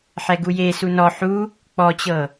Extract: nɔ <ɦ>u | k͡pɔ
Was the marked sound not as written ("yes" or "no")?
yes